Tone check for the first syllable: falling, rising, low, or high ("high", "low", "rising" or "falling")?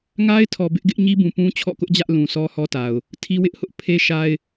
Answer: high